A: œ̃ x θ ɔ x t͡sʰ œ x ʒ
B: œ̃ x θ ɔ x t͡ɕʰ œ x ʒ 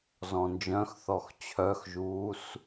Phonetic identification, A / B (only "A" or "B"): B